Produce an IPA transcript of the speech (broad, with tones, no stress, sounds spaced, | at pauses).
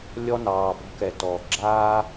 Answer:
lʲ ɔ˦ n ɑː˨ b ɔ̤˦ k ɛ˨ t ɔː˨ ɡ͡ǁ aː˦